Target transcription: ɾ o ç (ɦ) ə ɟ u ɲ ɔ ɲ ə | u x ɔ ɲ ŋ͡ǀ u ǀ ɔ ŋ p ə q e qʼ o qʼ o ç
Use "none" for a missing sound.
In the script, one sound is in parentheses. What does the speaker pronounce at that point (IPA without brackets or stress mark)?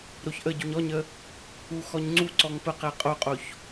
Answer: ʔ